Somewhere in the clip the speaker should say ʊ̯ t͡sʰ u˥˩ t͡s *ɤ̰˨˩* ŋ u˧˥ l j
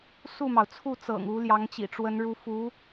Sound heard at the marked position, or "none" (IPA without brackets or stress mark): ɤ̰˨˩